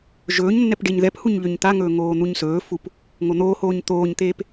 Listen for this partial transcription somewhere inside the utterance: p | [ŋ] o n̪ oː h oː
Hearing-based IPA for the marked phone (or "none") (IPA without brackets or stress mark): ŋ